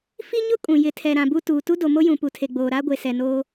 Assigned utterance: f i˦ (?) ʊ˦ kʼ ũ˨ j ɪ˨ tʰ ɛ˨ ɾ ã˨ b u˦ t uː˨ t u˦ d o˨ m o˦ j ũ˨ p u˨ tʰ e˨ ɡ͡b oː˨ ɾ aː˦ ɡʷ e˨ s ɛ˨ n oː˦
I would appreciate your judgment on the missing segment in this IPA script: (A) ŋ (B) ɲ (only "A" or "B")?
B